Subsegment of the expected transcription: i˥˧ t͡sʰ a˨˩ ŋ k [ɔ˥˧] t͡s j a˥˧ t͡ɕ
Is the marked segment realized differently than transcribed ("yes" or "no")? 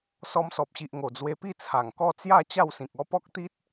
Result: no